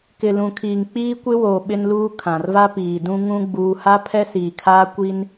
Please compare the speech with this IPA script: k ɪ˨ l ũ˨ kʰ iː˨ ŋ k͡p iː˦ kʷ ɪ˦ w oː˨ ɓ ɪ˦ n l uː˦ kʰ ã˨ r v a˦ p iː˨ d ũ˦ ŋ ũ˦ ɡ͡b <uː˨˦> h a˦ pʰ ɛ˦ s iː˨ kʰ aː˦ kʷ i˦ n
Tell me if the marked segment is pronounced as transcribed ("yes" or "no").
no